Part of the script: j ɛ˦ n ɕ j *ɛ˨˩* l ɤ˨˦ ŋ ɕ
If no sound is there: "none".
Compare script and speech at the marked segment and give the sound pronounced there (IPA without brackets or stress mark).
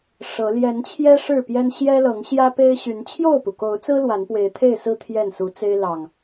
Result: ɛ˦